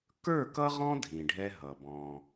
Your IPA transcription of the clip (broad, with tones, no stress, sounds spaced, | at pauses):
k ə˞˦˨ k ʌ˦ ʁ ɔ̃˦ dʱ ĩ˨ ɖʱ ɛ˦ ɦ ʌ˨ b ɔ̃˦